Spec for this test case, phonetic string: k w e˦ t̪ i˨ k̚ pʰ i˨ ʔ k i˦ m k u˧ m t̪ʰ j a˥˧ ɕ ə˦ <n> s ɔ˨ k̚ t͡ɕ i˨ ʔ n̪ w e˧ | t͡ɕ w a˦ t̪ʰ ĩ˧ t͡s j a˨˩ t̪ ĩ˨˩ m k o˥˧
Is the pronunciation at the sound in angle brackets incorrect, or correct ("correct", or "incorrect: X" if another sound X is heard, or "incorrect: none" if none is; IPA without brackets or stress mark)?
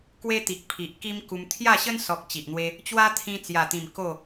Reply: correct